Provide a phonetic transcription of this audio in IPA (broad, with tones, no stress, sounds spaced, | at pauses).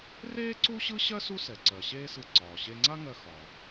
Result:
r eː˥ ǀ u˥ ɕ ɯ˥ ɕ ɜ˥ s u˥ s ɛ˩ ǀ ɜ˩ ɕ eː˥ s ɯ˧ ǀ ɒː˩ ɕ e˧ ŋ͡ǀ a˥ ŋ ɜ˧ x ɒ˩